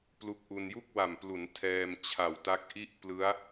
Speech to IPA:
plu˦˥k̚ʔu˧n ju˥˩k̚wa˨˩mplu˩˦n tʰɛː˧mt͡ɕʰa˨˩wta˦˥k̚ʔi˥˩ʔ plɯ˦˥a̯

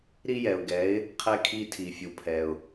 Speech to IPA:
ɾi˥jɛ˩ʊ̯ɡɛ˩˥ɪ̯ | qʰɛ˧kʰi˧ tʰi˩fʲu˩pʰɛ˩ʊ̯

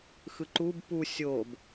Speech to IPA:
xɯǃub pu sʲob

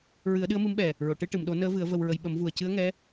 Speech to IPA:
ɹɨ˨˩˦ə̯ɗɨ˧˥ə̯mɨ˧˥mɓɛ˨˩ | ɹo˨˩˨ ʈɨ˧ʈɨ˨˩˨mɗo˨˩˦ nəː˧˥vɨ˨˩˦ə̯ və˧wɹə˧j ɓə˨˩˦mvu˨˩ə̯ cɨ˧˥ə̯ ŋɛ˧˥

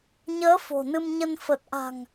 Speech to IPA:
ɲəː˨˦ fo̤˨˩nɨ˧mɲə˧n fə˨˩t̚ʔa̤˨˩ŋ

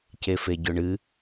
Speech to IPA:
cefeɟɵɳɨ

